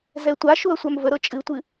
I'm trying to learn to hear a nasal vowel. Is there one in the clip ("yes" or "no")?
no